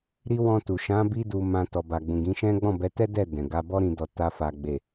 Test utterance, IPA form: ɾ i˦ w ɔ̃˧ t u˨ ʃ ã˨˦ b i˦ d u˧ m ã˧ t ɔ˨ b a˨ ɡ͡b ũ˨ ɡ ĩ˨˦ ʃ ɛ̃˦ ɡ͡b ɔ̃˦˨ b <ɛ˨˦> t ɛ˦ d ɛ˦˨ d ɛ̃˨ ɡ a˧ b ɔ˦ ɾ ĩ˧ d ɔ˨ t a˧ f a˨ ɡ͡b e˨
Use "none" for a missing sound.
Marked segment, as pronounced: ɛ˨˦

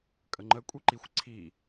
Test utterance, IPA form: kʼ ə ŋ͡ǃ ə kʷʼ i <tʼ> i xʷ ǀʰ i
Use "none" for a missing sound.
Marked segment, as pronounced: ǃ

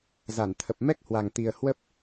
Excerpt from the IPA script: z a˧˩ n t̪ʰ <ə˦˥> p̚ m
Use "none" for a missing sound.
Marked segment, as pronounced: ə˨˩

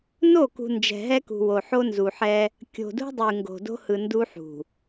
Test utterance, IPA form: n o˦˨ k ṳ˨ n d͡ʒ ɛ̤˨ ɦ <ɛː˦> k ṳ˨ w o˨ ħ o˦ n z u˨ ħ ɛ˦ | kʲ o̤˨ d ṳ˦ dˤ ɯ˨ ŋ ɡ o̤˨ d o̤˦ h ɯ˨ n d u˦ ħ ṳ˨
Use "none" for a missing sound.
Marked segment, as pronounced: ɛ˦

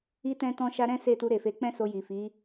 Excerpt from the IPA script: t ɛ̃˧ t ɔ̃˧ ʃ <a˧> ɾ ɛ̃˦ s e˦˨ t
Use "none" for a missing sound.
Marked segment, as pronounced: a˧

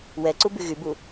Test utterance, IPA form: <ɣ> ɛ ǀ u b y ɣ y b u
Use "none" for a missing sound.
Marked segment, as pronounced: w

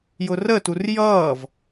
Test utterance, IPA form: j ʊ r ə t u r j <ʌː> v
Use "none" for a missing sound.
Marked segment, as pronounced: ʌː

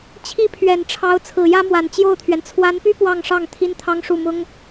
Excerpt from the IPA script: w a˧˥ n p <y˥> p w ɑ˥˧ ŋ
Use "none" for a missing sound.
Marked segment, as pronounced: y˥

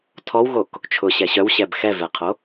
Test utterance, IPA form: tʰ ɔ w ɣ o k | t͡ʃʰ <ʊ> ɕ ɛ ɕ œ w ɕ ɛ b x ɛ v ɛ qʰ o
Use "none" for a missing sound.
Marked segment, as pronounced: ʊ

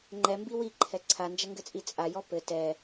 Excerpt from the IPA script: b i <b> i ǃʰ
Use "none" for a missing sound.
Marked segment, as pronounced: w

